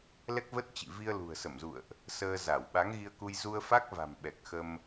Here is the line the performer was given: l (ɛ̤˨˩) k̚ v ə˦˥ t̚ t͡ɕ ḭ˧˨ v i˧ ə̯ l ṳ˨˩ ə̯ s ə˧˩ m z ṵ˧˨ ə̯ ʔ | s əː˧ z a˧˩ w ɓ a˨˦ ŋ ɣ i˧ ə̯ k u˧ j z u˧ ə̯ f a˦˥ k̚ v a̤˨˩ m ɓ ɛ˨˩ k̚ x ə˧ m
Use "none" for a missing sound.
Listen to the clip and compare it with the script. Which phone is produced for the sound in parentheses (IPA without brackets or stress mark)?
ɛ˦˥